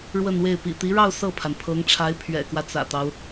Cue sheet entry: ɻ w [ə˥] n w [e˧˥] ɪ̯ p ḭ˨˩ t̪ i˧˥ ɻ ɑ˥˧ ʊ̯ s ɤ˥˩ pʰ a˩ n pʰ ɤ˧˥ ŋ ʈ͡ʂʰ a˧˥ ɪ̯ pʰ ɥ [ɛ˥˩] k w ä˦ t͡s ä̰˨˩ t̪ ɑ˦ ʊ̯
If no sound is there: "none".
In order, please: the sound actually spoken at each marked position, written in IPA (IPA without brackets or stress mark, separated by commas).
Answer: ə˥˧, e˥˩, ɛ̰˨˩